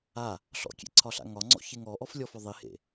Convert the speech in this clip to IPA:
a | ɬɔ̰kʲḛǀʰɒɬa̰ ŋɒŋ͡ǀɔ̰çeŋ ɔʔɔflʲɔfɔ ðˤihḛ

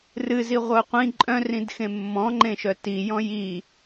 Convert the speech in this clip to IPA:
rɨzi ʁʷœqʷĩ ǃʼœ̃rĩd xẽmːɔ̃ŋ͡ǃẽʃœ tijɔ̃ ji

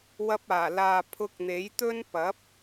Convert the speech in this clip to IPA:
wɐ˧p̚aː˨˩ laː˨ pʰʊ˧k̚n̪e˨˥jt̪ɵ˥n pɐ˨˥p̚

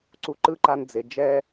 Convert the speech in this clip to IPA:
ǀu˧ǃɯ˦ǃa˧n d͡ze˨ d͡ʒɛ˦

